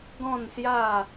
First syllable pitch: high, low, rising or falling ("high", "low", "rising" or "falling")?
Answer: falling